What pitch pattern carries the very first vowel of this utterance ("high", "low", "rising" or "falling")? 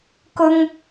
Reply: high